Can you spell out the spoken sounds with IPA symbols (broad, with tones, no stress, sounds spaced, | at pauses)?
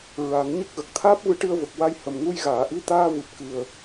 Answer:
ɹ a˨˩˦ ŋ ɲ ə˦˥ k̚ ɣ ə˨˩ k̚ t̪ʰ aː˦˥ p̚ v ɨ˧˥ ʈ ɨ˧ ə̯ v ə˨˩ k̚ w a˧ j h ə˨˩ m ŋ u˧ j ɣ aː˨˩˨ ʔ i˧˥ t̪ aː˧ v ɨ˨˩ p̚ k ɨ˨˩ ə̯